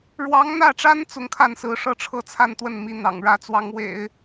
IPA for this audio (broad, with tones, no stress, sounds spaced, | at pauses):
ɻ w ɑ˧˥ ŋ n̪ ä˥˩ ʈ͡ʂ a˥ n t͡s ʊ˧˥ ŋ kʰ a˥˩ n s ɹ̩˧˥ ʂ ɤ˥˧ ʈ͡ʂʰ ɤ˥˧ t͡sʰ a˥˧ n t̪ w ə˥˩ n m i˧˥ n̪ ɑ̰˨˩ ŋ ɻ ä˧˥ t͡s w ɑ˧˥ ŋ w ḛ˨˩˦ ɪ̯